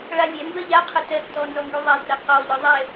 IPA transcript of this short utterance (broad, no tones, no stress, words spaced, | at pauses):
ɭalʲɛmbɜ ʎaqʰə tɜtːɔ nzɔŋɡyðˤɛdrɜ qɔʎɯ ðˤɛ